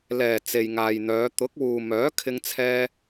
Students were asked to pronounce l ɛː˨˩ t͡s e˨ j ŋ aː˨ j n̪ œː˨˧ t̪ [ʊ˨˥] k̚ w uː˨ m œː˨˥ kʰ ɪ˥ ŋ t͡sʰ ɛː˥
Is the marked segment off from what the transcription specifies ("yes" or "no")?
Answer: no